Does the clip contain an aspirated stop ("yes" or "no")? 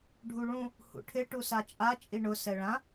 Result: yes